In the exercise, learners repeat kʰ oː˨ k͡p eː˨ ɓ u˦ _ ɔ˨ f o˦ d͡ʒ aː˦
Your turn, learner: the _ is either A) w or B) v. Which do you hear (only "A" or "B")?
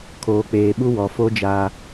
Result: A